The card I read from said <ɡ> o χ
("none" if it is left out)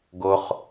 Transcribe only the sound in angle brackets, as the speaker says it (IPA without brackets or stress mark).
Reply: ɡ